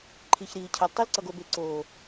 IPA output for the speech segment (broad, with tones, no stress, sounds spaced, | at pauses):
ǃʰ i˨ ç ɾ iː˨ cʰ ʌ˨ l tˤ e˦ l ǀ ʌ˨ ɡ o˨ b e˨ ǀ oː˨